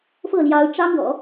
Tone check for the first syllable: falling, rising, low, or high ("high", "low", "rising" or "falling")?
falling